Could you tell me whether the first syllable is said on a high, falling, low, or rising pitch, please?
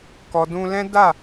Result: low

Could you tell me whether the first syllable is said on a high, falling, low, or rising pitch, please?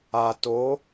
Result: low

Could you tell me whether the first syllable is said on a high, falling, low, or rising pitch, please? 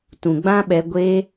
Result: low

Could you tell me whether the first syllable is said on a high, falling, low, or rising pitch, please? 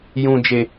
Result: low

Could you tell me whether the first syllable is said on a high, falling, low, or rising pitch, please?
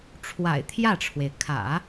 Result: low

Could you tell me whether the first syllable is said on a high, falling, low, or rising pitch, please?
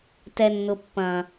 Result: low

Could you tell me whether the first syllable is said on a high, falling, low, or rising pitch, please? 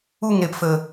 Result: falling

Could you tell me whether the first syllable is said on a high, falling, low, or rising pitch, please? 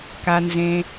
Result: low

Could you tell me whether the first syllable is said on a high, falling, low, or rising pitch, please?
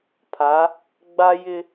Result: rising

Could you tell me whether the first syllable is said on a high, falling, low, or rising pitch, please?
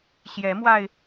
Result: rising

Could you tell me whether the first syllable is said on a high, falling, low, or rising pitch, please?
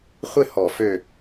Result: falling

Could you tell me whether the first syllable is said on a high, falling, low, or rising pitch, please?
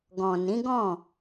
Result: low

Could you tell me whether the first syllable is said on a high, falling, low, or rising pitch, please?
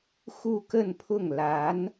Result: falling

